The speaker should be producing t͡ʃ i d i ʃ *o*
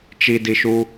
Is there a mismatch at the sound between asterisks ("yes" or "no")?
yes